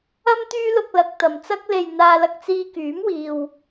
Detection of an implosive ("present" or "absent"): absent